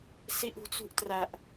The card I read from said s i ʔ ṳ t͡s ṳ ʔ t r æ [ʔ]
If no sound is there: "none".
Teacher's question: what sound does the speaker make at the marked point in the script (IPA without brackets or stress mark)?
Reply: ʔ